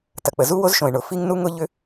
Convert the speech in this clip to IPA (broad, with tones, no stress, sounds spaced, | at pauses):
t ɐ˩ k͡p ə˩ z u˥ w o˥ z ʃ õ˩ ɪ̯ ɳ ʊ˩ f i˥ ŋ n u˥ ŋ ʊ˥ ʎ ʏ˥